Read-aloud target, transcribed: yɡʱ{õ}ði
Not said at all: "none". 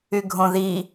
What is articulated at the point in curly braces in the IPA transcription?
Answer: õ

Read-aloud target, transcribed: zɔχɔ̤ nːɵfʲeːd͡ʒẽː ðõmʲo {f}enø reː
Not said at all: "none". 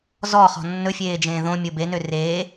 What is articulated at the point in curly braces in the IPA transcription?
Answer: b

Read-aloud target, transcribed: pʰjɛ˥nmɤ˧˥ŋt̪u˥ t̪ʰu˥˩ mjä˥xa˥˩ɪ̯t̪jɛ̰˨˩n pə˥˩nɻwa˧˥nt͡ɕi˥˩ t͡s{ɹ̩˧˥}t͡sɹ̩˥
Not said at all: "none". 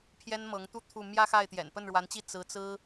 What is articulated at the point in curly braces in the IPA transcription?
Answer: ɹ̩˧˥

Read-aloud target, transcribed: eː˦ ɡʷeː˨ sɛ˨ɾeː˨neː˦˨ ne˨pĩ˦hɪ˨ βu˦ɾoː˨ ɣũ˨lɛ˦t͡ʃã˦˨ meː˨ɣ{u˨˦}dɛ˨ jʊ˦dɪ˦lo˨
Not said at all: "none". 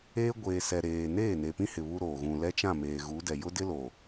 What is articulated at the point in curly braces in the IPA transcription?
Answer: u˨˦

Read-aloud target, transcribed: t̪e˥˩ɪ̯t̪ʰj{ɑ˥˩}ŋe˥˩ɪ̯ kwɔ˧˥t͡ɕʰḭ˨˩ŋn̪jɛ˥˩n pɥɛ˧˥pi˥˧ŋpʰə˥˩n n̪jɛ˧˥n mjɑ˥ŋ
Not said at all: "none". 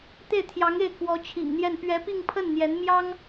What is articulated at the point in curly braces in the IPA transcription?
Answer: ɑ˧˥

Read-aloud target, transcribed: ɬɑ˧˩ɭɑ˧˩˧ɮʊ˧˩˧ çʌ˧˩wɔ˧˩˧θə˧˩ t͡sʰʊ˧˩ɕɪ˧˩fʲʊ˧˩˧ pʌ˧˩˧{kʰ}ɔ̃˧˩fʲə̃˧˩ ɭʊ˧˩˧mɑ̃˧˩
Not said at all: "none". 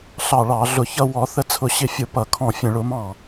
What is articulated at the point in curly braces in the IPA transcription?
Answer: kʰ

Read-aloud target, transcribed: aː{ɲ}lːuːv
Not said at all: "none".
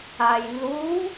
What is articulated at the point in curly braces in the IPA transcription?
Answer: j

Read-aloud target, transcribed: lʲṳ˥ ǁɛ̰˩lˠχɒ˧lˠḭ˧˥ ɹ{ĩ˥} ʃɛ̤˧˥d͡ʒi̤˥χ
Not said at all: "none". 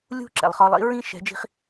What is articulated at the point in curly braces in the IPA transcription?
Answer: ĩ˥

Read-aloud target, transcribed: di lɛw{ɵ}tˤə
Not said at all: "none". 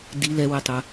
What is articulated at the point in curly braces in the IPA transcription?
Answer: ə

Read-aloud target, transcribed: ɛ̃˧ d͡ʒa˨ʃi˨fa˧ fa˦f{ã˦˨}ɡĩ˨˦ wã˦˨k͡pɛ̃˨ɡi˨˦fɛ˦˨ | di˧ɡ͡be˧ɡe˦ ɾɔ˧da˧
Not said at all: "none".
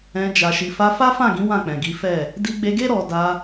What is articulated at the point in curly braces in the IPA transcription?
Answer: ã˦˨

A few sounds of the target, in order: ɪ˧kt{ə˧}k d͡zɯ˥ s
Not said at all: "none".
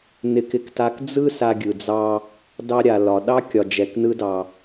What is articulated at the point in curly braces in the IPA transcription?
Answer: a˧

